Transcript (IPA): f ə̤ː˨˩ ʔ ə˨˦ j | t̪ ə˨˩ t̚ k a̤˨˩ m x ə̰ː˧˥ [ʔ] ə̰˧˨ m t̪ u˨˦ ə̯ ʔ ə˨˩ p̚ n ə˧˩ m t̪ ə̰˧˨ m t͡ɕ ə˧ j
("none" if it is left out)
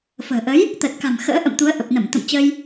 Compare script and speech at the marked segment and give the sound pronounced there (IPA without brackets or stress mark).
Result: ʔ